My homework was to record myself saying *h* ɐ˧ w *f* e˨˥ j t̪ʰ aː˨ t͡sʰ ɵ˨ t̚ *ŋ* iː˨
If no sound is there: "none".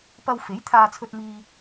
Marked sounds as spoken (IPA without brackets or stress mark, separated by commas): p, f, m